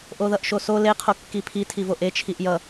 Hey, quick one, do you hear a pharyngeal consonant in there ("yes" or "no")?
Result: no